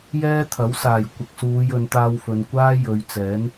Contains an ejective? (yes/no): no